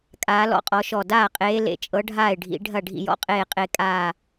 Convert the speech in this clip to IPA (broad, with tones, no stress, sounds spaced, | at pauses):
kʼ aː˨˦ l ɔ̰˥˩ qʼ ɔ˨˦ ʃ ɔ˧˩ d aː˥˩ qʼ eː˨˦ l ḛ˨˩˦ t͡ʃʼ ɤ˨˦ ɖʱ aː˥˩ ɪ̯ ɖʱ ḭ˨˩˦ ɖʱ ɐ˥˩ ɖʱ ḭ˥˩ j ɔ̰˨˦ qʼ eː˧˩ qʼ e˨˩˦ kʼ aː˧˩